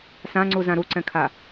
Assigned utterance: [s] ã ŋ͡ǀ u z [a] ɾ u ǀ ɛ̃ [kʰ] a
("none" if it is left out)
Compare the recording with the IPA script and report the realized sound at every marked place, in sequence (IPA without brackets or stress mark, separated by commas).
s, ã, kʰ